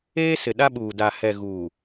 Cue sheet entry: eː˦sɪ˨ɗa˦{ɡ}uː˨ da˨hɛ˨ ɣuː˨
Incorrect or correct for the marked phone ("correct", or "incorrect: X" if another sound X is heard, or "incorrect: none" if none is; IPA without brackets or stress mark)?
incorrect: ɓ